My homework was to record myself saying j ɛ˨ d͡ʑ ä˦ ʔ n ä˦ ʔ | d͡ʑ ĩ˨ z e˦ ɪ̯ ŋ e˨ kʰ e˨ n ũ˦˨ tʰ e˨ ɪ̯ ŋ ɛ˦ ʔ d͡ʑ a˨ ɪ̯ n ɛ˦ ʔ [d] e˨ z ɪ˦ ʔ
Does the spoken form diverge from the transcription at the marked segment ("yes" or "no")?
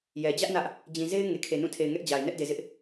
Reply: no